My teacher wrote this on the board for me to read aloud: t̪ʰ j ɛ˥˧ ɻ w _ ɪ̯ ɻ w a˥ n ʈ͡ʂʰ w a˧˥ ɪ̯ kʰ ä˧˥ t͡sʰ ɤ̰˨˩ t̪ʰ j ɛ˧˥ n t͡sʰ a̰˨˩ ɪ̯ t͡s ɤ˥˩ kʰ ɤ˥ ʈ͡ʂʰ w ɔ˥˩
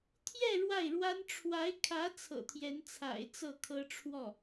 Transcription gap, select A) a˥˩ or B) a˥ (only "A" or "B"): A